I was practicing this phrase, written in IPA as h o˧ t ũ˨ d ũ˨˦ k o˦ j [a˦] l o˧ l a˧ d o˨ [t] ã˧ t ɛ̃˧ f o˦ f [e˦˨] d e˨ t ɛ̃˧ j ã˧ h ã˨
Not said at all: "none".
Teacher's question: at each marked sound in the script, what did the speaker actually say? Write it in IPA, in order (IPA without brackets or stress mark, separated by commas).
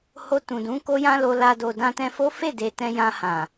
ã˦, d, e˦˨